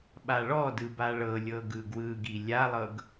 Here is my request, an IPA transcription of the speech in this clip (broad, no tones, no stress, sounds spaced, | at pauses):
ɓ a ɭ ɔ d ɯ b a ɭ ɤ lʲ ɤ ɡ ɯ ɡ w ɯ ɡ i lʲ a lˠ ɤ ɡ